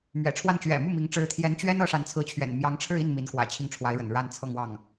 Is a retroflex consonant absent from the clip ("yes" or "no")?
no